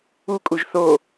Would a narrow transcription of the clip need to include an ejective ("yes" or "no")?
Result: yes